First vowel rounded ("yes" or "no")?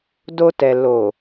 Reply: yes